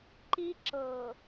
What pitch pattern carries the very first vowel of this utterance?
high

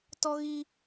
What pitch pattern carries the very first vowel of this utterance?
high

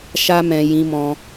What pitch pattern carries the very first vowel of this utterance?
high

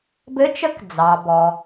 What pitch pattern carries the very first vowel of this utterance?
rising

